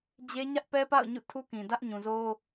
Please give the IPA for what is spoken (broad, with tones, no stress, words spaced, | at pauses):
d͡ʑe˦ɲä˦ʔpɛ˦pa̰˦˨ʊ̯ ɲṵ˦˨tʰu˦kĩ˨ dä˦ʔɲũ˨zo˦